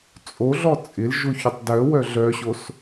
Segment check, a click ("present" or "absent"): absent